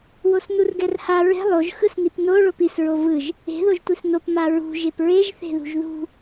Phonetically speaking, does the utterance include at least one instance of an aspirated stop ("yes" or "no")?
no